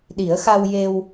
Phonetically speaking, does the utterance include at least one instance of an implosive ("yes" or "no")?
yes